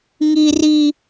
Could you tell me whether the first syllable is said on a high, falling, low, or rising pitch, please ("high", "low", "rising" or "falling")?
high